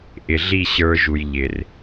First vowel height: high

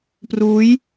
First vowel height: high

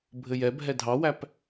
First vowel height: mid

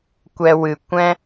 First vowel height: mid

